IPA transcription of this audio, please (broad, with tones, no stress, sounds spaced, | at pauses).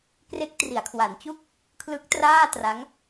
k r e˦˥ k̚ t r i˩˦ a̯ kʰ w a˩˦ n t͡ɕ u˥˩ k̚ | kʰ l ɯ˦˥ k̚ t r aː˥˩ t r a˦˥ ŋ